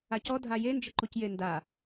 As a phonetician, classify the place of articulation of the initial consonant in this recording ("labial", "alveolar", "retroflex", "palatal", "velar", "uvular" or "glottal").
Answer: palatal